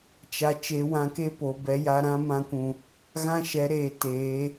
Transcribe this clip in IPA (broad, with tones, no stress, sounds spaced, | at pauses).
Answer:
t͡ʃ a˨ t͡ʃ e˨˦ w ã˧ k e˦ p o˨ b ɛ˨˦ j a˧ ɾ ã˦ m ã˧ kʷ ũ˨ | ɣ ã˦ ʃ ɛ˨˦ ɾ eː˨ t eː˨˦